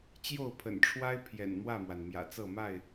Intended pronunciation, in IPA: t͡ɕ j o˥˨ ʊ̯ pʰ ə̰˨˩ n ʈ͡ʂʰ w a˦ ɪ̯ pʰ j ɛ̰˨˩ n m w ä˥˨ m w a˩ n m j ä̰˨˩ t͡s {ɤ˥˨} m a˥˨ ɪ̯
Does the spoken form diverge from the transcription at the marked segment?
no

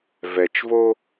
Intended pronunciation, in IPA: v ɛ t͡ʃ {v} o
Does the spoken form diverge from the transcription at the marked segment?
no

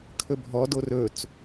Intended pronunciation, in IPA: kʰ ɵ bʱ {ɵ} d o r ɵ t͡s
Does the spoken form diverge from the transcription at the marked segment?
yes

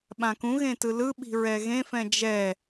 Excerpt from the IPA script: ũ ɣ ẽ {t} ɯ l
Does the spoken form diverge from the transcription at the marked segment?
no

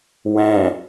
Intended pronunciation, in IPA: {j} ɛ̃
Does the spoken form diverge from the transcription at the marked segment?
yes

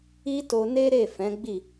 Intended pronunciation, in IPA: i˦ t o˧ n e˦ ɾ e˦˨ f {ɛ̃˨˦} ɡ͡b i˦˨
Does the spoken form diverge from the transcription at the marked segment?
no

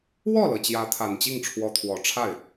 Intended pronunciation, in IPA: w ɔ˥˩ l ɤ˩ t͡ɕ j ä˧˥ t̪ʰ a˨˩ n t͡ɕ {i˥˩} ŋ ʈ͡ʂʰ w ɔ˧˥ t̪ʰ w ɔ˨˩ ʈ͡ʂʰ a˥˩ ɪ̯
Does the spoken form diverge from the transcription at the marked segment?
no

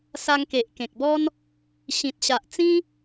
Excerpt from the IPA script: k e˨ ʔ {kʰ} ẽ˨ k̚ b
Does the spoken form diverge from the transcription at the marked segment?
yes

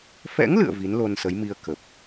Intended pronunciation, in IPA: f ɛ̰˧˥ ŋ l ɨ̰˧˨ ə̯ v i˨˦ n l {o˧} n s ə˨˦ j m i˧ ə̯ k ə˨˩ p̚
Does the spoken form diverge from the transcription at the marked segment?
no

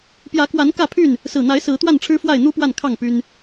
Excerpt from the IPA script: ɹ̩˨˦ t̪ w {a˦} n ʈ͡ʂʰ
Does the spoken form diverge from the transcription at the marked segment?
yes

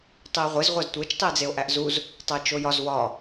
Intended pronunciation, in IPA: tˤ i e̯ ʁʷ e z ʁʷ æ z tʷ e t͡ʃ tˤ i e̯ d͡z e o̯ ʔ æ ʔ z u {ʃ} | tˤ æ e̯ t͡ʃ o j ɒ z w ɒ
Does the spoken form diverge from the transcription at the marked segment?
yes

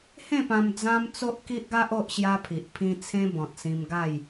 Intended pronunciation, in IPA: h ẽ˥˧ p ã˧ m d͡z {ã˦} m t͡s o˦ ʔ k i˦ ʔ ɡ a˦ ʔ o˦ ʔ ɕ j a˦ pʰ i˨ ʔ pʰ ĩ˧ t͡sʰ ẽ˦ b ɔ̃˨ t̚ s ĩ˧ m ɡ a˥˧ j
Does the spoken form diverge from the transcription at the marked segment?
no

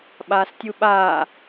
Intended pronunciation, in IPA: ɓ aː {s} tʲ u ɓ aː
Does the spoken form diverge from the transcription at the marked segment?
no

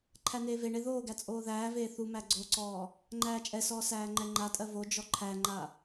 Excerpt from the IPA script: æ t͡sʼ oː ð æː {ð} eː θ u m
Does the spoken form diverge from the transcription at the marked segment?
yes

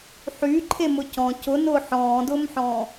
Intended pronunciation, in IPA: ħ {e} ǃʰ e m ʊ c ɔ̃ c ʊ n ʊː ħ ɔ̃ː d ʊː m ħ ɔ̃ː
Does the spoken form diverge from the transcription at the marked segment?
yes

